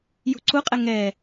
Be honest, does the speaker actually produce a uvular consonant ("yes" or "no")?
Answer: yes